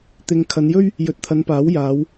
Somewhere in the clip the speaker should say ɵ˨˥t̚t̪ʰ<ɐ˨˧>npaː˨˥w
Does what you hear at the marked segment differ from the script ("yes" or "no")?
no